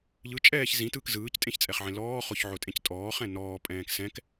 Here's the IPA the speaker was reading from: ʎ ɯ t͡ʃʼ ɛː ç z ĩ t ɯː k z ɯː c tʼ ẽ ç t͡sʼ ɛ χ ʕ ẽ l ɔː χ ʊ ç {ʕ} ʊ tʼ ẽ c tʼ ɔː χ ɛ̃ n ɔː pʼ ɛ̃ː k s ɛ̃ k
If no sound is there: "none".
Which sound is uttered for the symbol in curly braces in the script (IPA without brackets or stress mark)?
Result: ʕ